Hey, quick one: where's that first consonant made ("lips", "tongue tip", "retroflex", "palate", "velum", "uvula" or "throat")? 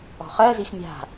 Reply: uvula